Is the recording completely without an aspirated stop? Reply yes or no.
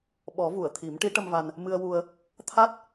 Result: no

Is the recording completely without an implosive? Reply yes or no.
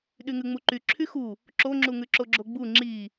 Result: no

